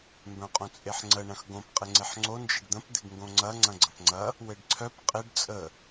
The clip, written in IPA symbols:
m b œ̃ qʼ õ t͡sʼ e ħ ŋ͡ǀ ə ɳ ɐ̃ x ɡ õ p qʼ ɪ ŋ͡ǀ e ħ ŋ͡ǀ o n d͡ʒ ə ɖ d̪ ə̃ p d̪ ɪ ɡ ŋ ɡ õ ŋ͡ǀ ɐ ŋ͡ǀ ɐ̃ ɡ͡ǀ ɐ̃ p ŋ͡ǀ ɐ | w e ɖ ǀʰ œ p qʼ ɪ ɖ t͡sʼ ə

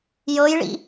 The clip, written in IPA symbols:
j ɤ j ɭ ḭ

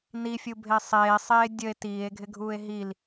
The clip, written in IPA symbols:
n i fʲ u bʱ e sˤ eː sˤ eː dʲ ə e̯ t iː e̯ ɡʱ ɪ ɡʱ uː e̯ ɦ i l

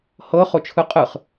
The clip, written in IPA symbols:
h ɤ χ o t͡ʃʰ ɯ qʼ ɯ χ

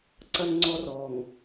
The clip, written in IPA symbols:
ǀ ɐ˦ n ŋ͡ǀ ɔ˦ r ɔ˨ ŋ

